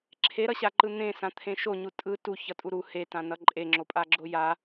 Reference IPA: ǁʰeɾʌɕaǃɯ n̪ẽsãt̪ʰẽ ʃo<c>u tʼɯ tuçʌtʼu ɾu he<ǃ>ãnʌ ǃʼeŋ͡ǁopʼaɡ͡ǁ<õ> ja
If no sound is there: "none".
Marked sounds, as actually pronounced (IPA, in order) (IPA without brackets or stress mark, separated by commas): ɲ, t, o